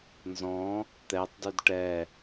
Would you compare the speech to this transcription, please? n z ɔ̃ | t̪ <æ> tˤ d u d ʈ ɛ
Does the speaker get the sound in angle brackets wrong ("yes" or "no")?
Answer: yes